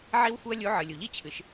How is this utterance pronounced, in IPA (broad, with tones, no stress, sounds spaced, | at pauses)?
ʕ i˥ w xʷ ɨ˥ ɐ̯ lʲ u˧˥ ʕ ɨ˩ lʲ u˩ ʎ i˥ t͡ɕʰ ɨ˩˧ ʃ